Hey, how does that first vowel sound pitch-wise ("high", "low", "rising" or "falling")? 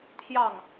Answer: falling